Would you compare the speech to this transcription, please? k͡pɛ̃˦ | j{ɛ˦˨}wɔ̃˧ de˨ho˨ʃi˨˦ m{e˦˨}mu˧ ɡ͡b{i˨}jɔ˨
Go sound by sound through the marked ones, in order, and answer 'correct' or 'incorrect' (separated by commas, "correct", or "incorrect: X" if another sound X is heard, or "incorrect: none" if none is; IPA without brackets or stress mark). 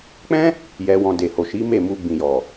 incorrect: ɛ˧, correct, incorrect: ĩ˨